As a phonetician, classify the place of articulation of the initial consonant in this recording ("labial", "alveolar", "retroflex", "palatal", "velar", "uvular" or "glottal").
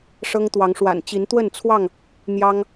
retroflex